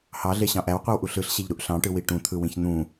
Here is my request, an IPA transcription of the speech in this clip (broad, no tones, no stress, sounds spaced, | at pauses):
h ɑ ɮ e ɕ ɑ̃ ʔ æ w qʷ i w ʔ u ɬ ɯ ɬ ɕ e ʎ ɾ u ʔ ɬ ɑ̃ ʈ ɯ w i ʈ ũ t̪ʰ ɯ w ĩ ç n̪ ũ